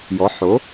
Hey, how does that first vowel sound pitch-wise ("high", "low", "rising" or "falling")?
rising